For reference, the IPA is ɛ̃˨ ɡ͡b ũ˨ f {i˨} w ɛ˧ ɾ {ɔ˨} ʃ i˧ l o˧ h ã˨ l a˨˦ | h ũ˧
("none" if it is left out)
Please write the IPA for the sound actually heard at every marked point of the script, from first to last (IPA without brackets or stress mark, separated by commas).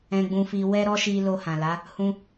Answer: i˨, ɔ˦